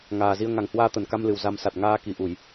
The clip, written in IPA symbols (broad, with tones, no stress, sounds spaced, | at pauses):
ŋ aː˨˩ z i˧ ə̯ ŋ a˨˩ ŋ h w aː˧ t̪ ə˧˩ n k a˧ m l ɨ˨˩ w z a˧ m s a˨˩ t̚ ŋ aː˧ k i˧˩ ʔ u˧˩˨ j